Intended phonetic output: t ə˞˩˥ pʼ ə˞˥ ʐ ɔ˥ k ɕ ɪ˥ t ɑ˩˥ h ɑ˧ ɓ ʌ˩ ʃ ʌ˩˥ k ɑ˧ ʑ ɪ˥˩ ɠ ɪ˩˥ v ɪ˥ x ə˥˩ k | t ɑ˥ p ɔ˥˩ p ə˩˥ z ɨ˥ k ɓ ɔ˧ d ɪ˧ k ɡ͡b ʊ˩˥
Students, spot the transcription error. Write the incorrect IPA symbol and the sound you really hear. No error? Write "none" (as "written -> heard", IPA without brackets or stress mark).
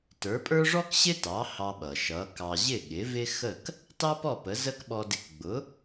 ɨ˥ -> ə˥